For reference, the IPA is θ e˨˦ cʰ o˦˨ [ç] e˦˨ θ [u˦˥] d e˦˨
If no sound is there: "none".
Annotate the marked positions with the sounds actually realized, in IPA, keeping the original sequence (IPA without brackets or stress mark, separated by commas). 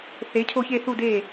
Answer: ç, u˦˨